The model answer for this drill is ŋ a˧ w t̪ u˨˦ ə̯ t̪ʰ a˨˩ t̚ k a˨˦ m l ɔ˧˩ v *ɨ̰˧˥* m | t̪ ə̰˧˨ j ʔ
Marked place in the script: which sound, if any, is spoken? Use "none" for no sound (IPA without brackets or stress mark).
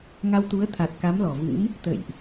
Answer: ɨ̰˧˥